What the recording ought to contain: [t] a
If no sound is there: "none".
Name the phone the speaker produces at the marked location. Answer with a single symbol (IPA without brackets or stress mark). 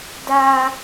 d